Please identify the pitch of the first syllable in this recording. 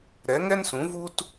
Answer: rising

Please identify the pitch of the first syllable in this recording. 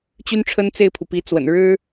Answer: high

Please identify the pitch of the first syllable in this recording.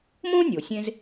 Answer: high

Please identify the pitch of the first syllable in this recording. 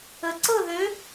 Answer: low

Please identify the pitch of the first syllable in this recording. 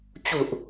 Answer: low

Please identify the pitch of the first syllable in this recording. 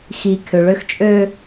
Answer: low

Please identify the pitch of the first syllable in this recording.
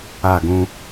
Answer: falling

